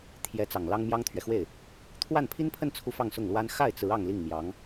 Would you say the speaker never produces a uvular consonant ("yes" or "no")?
yes